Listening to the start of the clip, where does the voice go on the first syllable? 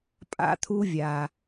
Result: high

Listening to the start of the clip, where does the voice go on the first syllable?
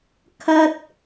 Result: high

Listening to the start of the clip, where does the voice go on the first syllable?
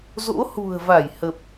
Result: rising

